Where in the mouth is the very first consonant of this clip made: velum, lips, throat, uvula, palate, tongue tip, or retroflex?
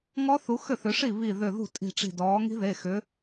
velum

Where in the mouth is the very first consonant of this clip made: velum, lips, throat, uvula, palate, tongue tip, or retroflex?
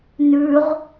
tongue tip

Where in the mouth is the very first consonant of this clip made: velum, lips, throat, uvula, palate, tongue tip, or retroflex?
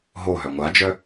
throat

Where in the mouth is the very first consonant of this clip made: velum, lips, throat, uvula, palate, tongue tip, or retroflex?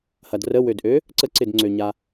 throat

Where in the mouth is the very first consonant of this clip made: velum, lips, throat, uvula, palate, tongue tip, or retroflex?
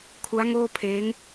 velum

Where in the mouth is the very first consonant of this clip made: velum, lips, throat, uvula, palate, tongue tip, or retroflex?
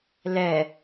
tongue tip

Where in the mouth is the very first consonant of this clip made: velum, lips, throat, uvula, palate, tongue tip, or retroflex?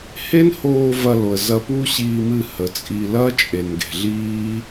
throat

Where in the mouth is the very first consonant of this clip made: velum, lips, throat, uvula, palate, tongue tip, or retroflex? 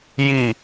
palate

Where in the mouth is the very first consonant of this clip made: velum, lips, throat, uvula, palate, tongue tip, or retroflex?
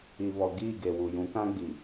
lips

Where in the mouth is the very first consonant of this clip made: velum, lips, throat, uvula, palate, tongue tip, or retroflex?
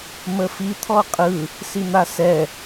lips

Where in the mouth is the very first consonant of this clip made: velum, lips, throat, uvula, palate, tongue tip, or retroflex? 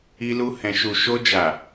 tongue tip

